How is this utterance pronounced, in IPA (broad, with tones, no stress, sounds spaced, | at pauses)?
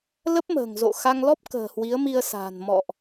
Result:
l ə˦˥ p̚ m ə̤ː˨˩ ŋ z o̰˧˨ x a˧ ŋ l ɔ˦˥ p̚ k ə̤ː˨˩ h w i˨˦ ə̯ m i˧ ə̯ s a̤ː˨˩ n m ɔ̰˧˨ ʔ